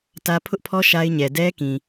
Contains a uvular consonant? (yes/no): no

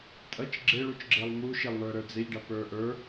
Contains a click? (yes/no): yes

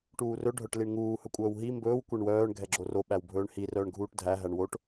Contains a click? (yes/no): yes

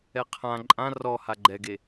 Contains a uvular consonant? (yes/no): yes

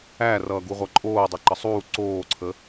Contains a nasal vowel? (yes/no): no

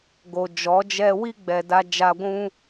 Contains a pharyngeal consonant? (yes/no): no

